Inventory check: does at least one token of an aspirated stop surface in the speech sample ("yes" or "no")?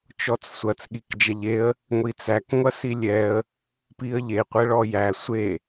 no